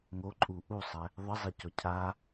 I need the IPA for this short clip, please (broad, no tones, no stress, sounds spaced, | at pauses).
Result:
ŋ o ǃʼ u ʔ u sˤ ɛ | ðˤ ə zˤ e c ɔ cʰ a